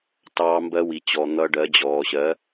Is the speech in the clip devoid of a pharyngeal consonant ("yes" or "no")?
yes